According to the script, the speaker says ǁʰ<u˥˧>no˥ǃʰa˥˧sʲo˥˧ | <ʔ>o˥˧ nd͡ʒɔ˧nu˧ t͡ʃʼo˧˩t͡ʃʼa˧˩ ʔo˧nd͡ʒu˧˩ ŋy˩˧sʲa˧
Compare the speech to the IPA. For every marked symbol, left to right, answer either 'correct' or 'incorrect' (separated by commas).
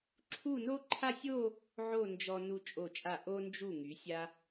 correct, incorrect